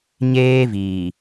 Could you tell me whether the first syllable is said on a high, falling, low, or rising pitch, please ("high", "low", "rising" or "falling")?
high